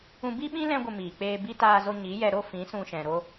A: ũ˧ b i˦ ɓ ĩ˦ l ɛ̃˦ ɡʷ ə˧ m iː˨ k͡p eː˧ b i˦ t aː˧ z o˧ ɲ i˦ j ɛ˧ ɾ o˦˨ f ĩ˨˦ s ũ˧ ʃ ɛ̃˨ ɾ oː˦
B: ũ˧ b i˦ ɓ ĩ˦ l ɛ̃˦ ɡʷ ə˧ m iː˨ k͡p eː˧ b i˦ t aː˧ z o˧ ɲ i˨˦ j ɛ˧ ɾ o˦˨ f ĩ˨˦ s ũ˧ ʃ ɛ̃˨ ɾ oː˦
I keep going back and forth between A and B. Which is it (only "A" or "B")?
B